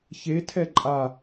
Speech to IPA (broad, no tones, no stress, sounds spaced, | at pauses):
ç e tʰ ɛ ǃʼ a